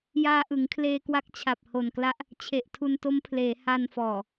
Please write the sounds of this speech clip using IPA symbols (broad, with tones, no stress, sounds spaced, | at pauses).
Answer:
j aː˧ ʔ ɯ˩˦ ŋ kʰ l eː˧ k w a˦˥ k̚ t͡ɕʰ a˨˩ p̚ h o˨˩ n k l a˦˥ ʔ | t͡ɕʰ e˨˩ ʔ tʰ u˧ n t o˦˥ m pʰ l eː˩˦ h a˧ n f ɔː˨˩